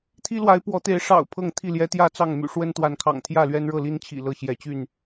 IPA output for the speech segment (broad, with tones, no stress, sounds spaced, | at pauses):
t̪ʰ i˦ l w a˨˦ ɪ̯ p w ɔ˨˦ t̪ e˨˦ ɪ̯ ʂ ɑ̰˨˩ ʊ̯ pʰ ɤ˥˨ ŋ t̪ʰ i˥˨ l j ɛ˦ t̪ j ä˥˨ t͡s ɑ˥˨ ŋ m y̰˨˩ ʂ w ə˦ n t̪ w a˨˦ n kʰ ɑ̰˨˩ ŋ t̪ʰ j ä˥˨ l ɥ ɛ˦ n ɻ ɤ˥˨ l i˦ n t͡ɕʰ ḭ˨˩ l ɤ˥˨ ɕ j ɛ˨˦ t͡ɕ y˥˨ n